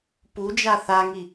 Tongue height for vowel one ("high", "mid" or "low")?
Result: high